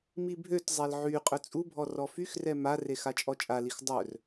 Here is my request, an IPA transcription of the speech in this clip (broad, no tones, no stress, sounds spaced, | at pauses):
m i bʱ ø t zˤ ɛ l ʕ y qʼ œ t͡sʼ u bʱ ɔ r ɔ f y x r ɛ m a r e x a t͡ʃʼ ɔ t͡ʃʼ a l i x dˤ œ r